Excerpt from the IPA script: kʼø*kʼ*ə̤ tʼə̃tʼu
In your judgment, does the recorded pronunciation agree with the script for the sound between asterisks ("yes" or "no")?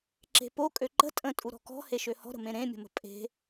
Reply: no